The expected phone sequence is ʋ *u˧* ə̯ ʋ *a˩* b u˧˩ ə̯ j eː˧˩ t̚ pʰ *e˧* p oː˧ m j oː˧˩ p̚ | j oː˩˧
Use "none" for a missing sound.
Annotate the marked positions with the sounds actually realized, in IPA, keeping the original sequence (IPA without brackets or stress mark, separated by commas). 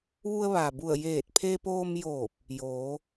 u˧, aː˩, e˧